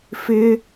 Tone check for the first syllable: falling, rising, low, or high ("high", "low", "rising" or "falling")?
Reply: high